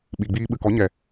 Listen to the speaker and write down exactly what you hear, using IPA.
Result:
ɓ i˨ ɡ͡b iː˧ ɓ ɨ˨ k ɔ˨˦ ɲ ɛ˨

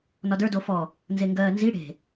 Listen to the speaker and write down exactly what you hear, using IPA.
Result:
n ɒ d ə˞ d o f ɔ | n z e ŋ ɡ ɜː n z i ɽ e̤

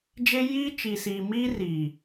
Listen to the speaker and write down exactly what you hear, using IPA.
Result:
d͡ʒ e˦ j iː˦ t͡ʃ i˨ s iː˨ m iː˦ r i˨

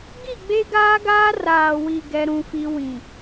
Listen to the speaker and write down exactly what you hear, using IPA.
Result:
ɡ i˦˨ ɡ͡b e˦ ɡ aː˦ ɡ aː˦ r aː˨ w i˨ ɡ ɛ˦ ɾ ũ˦ f i˦ w ĩ˨

